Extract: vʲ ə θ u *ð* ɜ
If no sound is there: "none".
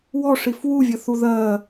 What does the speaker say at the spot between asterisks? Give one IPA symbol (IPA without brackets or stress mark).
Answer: ð